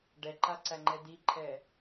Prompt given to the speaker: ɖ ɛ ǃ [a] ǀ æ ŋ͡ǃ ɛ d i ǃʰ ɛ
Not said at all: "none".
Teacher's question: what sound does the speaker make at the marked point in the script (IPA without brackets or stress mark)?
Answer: a